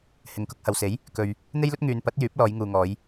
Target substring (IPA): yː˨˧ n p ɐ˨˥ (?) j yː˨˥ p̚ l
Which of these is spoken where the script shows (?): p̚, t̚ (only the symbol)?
t̚